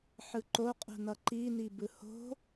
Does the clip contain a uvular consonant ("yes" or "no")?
yes